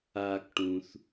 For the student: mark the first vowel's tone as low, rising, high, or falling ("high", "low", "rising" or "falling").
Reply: low